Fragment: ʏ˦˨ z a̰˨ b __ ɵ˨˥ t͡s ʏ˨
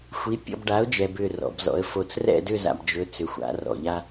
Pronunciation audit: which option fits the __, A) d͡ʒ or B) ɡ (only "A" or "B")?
A